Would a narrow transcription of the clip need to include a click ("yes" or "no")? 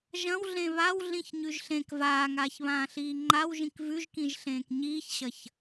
yes